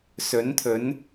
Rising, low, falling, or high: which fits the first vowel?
rising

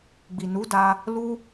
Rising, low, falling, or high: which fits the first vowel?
low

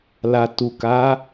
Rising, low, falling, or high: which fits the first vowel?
low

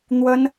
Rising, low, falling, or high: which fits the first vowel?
high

